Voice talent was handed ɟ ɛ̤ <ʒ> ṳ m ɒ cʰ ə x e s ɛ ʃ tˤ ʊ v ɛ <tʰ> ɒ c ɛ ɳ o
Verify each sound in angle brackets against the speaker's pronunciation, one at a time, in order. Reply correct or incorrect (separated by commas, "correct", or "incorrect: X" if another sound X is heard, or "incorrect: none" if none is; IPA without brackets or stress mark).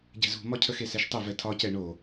incorrect: z, correct